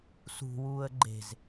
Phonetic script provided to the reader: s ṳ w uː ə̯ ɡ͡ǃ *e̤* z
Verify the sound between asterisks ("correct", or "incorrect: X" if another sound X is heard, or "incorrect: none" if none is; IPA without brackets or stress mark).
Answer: correct